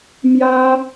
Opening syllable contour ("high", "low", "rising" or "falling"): high